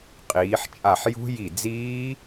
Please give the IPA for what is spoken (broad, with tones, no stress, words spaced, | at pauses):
qʼiː˩˧ħt͡ʃʼa˧˩ħ jṳ˦˥ ji˧˩d͡ziː˦˥